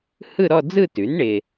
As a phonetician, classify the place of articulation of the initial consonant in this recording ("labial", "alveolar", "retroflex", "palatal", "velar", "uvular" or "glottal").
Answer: glottal